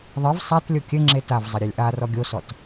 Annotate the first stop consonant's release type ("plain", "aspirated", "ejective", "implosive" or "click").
plain